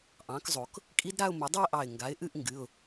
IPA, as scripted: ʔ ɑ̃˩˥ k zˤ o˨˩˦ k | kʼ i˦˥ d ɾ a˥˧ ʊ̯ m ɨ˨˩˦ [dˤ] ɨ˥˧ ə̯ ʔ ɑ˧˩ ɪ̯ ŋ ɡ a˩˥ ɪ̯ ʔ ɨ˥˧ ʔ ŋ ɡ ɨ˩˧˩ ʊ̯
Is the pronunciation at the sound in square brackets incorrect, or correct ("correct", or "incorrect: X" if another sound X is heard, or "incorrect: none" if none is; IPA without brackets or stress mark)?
correct